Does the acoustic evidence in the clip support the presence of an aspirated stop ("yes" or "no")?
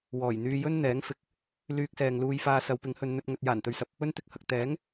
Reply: no